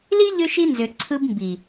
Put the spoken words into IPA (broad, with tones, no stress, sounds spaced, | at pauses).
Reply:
l i˦ ʎ ø˦ ʃ i˦ n z ø˨ ǀʰ ɯ˦ b m b i˨